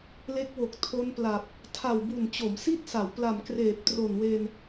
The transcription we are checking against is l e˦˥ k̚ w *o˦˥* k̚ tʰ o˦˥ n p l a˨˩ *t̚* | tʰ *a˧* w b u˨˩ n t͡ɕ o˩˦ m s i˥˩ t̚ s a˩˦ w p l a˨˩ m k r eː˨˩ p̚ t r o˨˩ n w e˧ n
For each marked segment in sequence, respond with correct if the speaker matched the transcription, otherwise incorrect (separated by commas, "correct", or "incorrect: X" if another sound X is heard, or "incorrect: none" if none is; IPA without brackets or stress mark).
incorrect: o˨˩, incorrect: p̚, incorrect: a˨˩